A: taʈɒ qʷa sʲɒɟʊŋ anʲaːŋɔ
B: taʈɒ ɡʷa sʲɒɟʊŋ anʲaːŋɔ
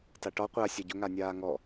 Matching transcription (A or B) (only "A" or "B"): A